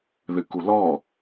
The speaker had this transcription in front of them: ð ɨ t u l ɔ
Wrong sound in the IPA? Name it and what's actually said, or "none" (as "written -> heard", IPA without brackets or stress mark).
t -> k